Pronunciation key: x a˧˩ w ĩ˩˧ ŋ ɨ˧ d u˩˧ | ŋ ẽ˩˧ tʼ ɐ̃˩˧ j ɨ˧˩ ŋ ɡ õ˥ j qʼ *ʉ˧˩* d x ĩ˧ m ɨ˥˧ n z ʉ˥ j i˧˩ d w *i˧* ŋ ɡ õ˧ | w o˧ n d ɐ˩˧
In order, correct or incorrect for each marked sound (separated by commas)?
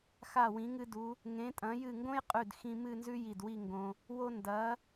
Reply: correct, incorrect